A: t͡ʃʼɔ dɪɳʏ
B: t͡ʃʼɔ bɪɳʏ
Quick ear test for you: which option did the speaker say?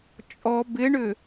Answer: B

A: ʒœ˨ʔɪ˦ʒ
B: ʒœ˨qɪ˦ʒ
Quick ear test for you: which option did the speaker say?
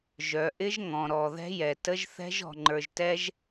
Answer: A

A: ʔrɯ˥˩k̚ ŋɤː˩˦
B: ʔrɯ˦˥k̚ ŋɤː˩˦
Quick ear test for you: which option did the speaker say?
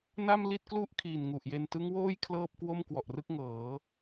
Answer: A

